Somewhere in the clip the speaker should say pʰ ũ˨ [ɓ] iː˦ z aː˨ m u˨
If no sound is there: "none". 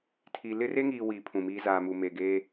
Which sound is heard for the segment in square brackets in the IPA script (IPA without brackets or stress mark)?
m